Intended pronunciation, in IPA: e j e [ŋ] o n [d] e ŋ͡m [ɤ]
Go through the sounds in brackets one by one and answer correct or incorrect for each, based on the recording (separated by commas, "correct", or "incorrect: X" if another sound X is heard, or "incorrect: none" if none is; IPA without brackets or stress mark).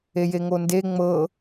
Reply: correct, correct, correct